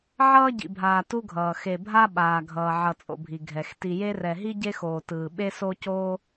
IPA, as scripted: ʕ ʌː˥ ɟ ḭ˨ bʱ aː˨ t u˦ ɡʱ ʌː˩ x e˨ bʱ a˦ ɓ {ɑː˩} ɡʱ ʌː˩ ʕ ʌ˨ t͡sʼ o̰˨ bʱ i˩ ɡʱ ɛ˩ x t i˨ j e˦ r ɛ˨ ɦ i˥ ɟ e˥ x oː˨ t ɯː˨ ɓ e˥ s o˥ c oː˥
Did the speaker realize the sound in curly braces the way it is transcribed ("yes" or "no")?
no